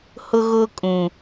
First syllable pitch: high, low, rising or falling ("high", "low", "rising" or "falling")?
high